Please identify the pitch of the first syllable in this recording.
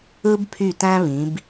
high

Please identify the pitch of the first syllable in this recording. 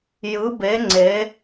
rising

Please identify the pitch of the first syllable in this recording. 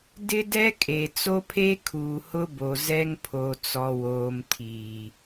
high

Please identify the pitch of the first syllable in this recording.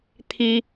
high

